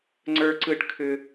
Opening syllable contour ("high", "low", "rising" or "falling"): high